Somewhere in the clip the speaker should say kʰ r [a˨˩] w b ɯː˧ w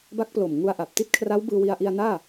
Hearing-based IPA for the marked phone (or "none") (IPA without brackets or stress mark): a˦˥